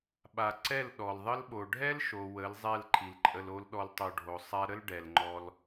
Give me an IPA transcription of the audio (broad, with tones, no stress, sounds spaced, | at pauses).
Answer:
ɓ a˨ ǀ ɛ˦˨ l ɗ ɔ˨ l ðˤ ə˦ l ɓ o˨ ɖʱ ɛ˦ l ʃ o˨ w ə˨˦ l zˤ ɛ˦˨ l ǃʰ i˨ l ǃʼ ə˧ l o˦ l ɗ ɔ˧ l tˤ o˧ ɖʱ o˨ sˤ a˦ ɾ ə˦ l ɖ ɛ˨ l ŋ͡ǃ ɔ˦ l